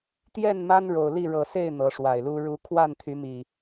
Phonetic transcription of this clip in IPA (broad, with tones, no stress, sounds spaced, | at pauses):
t̪ j ɛ˥˨ n m a˦ n ɻ o˨˩ ʊ̯ l i˥˨ ɻ ɤ˨˩ s e˥˨ ɪ̯ n̪ ɤ˨˦ ʂ w a˨˩ ɪ̯ l u˦ ɻ u˨˦ kʰ w a˥˨ n t̪ʰ y˨˦ m i˨˩